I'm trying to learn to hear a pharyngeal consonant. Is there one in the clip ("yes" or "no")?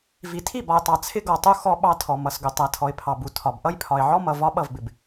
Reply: yes